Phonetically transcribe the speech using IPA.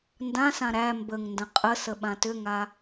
n d ã s ã ɾ æ m b ə ŋ n d ə̃ qʼ ə s ə ɓ ã t ʏ ŋ a

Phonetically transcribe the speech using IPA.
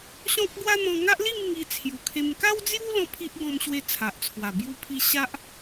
ɕ ɔ̃˦ k̚ ɡ w a˦ n̪ ɔ̃˧ ŋ a˦ ʔ l i˥˧ m ŋ i˧ t͡sʰ j u˨˩ kʰ e˧ m k a˦ w d͡z j u˦ l ɔ̃˥˧ pʰ i˦ ʔ ɡ ɔ̃˧ m ɕ w e˧ t͡sʰ a˨ ʔ t͡sʰ w a˨˩ b j u˦ pʰ i˦ ɕ a˦ ʔ

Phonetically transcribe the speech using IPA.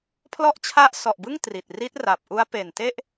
pʰ l ɔ˦˥ ʔ t͡ɕʰ a˦˥ ʔ s ɔ˨˩ ʔ b ɯ˥˩ ŋ t r i˨˩ t̚ r i˦˥ t̚ r a˨˩ p̚ ʔ u˦˥ a̯ p e˨˩ n t e˥˩ ʔ

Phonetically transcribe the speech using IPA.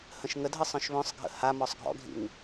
h ə̃ ʃ ŋ ə dʱ ə sˤ œ̃ ʃ β œ̃ sˤ ɡʱ ə̰ h a m ɔ sˤ ɡʱ ɔ̰ ɡʱ ḭ ŋ

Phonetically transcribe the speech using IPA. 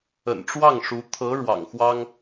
ə̰˨˩ n ʈ͡ʂ w ɑ˥˩ ŋ ʂ u˧˥ t̪ʰ ɤ˧˥ ɻ w ɑ̰˨˩ ŋ x w ɑ˥ ŋ

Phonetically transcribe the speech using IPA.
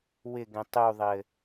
w ɪ ɡ ɛ̃ tˤ u ðˤ ɘ

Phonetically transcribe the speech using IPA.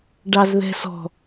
ɖ ɑ z ð ɛ̤ s ɔ̤

